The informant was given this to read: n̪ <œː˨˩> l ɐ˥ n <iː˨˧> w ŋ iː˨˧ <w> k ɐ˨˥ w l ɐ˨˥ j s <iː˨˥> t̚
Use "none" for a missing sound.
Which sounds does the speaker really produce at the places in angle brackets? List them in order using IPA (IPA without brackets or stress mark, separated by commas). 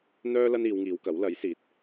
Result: œː˥, iː˨˧, w, iː˨˥